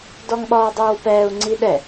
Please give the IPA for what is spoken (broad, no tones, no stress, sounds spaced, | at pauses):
d ɔ ŋ ɓ ɒː dˤ oː w p ɛː u̯ ŋ͡ǀ i ɗ ɛ